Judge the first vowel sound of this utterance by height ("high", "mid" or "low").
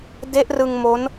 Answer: mid